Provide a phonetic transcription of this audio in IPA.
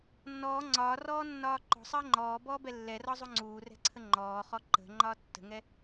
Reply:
nː ɔː ŋ͡ǀ ɒː r ɔː nː ɒː ǃ ɔ̤ sˤ əː ŋ͡ǃ ɔː b ɔː b ɛ lː ɛ r ɒ zˤ u ŋ͡ǀ uː r ɛ̤ ǀʰ ə ŋ͡ǃ ɔː χ ɔ ǃ ə̤ ŋ͡ǃ ɒː tː ə̤ ŋ ɛ

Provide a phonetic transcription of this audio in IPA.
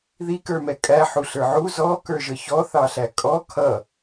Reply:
ð i k ə˞ m ɛ kʼ æ ħ u ɬ ə˞ ʕ u z ɔ k ə˞ ʒ ə ç ɔ θ ɑ ɬ æ kʼ ɔ kʰ ʌ

